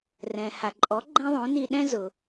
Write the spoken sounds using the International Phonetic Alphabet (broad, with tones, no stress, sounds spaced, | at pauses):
r ɛ̃˩ h a˩ ǃʼ ɔ˩˥ ɡ͡ǃ ɛ̃˥ ðˤ õ˩˥ n i˧ ɗ ɛ̃˥ z ʊ˩